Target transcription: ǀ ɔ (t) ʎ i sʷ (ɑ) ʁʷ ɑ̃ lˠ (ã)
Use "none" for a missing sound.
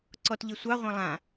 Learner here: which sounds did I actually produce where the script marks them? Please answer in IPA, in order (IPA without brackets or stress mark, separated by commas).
t, ɑ, ã